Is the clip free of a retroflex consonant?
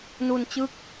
yes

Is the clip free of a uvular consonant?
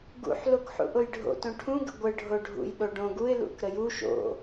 yes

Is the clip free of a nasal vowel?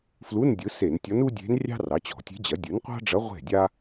yes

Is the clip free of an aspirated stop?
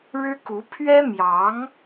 no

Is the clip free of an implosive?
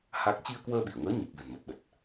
no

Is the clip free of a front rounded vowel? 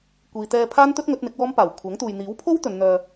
no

